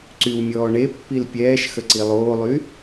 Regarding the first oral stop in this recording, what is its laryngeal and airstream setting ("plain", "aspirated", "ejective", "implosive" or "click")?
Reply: click